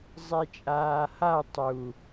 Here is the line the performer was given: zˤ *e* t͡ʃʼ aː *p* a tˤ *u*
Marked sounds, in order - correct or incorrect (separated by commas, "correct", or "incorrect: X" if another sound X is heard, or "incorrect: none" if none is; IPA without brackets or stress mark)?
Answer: correct, incorrect: h, correct